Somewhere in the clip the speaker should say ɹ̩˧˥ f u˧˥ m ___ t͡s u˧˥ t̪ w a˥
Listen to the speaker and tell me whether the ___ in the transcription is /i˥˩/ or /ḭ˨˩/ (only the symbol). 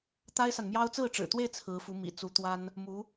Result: ḭ˨˩